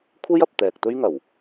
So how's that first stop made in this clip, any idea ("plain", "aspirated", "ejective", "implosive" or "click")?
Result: aspirated